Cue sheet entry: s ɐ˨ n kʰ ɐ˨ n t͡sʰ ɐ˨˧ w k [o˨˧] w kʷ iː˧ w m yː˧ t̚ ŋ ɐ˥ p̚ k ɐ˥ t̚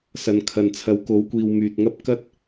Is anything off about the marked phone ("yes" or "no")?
no